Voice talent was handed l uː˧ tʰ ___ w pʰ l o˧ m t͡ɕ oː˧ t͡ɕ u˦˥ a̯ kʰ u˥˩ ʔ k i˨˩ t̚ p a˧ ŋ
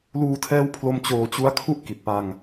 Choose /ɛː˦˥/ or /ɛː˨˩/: ɛː˦˥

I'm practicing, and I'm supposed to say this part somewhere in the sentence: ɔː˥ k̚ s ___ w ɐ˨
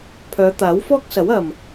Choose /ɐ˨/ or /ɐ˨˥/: ɐ˨˥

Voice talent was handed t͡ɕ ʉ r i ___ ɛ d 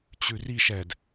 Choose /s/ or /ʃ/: ʃ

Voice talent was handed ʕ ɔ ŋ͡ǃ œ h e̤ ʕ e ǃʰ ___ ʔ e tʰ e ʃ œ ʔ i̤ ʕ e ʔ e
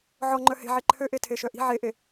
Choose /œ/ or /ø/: ø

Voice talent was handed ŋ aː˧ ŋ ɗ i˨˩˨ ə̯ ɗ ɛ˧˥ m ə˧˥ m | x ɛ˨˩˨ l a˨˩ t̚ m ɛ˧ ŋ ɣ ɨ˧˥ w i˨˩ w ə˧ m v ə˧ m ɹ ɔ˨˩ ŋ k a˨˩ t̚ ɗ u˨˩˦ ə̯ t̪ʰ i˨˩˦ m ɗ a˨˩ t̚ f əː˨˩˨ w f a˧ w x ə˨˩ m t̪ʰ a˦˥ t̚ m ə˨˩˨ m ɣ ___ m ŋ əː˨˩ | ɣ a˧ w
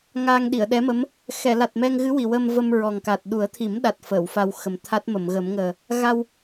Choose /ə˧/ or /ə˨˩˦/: ə˨˩˦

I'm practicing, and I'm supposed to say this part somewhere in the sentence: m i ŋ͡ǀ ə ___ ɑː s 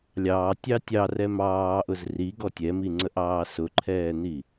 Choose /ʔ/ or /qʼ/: ʔ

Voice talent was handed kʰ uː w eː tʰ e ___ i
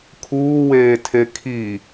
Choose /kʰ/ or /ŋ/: kʰ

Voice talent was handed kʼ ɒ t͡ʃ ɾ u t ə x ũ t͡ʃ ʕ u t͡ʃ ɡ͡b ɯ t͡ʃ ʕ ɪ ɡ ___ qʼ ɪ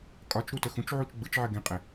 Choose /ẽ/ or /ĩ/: ẽ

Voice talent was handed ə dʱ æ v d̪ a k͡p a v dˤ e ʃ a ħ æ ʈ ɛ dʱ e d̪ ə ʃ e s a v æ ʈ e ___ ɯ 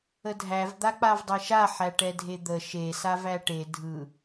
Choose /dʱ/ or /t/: dʱ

